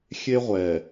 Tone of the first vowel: high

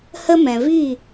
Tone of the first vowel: high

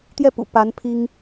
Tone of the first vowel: falling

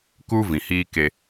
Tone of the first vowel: high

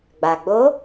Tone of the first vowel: low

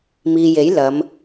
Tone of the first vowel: low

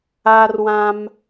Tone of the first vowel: high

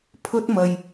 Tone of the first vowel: high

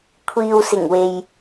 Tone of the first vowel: low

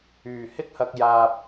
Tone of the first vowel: low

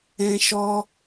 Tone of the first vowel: high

